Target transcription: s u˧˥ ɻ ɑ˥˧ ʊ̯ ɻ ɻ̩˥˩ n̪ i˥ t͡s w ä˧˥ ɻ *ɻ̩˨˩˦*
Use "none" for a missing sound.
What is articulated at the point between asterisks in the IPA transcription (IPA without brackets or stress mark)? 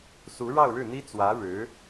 ɻ̩˧˥